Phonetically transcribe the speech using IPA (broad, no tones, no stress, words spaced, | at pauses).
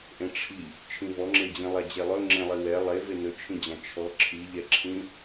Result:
ʔẽʈ͡ʂʰi | t͡ʃʰĩvɔŋ͡ǁed͡ʑĩ lˠad͡ʑelˠɵ ŋ͡ǁẽlˠiwɛ lˠe venɵt͡ʃʰĩd͡ʑã t͡ʃʰɔ ǁʰiʎɛǁʰĩ